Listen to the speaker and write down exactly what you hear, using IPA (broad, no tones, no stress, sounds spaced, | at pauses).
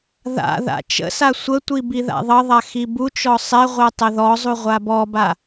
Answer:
ð a̰ ð a̰ t͡ʃ ə̰ s a sʷ ə tʷ i b i ð a̰ ðˤ ʌ ðˤ a x i b u t͡ʃ ɔ sˤ ɛ ʁʷ ɛ tˤ ə ð ɔ zˤ u ʁʷ a b ɔ b a